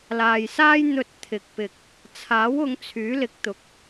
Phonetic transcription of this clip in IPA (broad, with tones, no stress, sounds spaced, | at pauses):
l aː˨ j s aː˥ j n̪ ɵ˧ t̚ t̪ʰ ɪ˨ k̚ p ɪ˨ k̚ | t͡sʰ aː˨˥ w ʊ˨˧ ŋ t͡sʰ yː˨˥ l ɪ˨˥ k̚ t̪ ʊ˨˥ k̚